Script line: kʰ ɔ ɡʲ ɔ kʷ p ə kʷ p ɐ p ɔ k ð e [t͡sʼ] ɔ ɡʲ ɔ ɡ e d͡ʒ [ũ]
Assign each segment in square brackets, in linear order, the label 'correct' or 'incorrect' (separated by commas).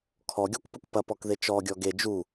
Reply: incorrect, incorrect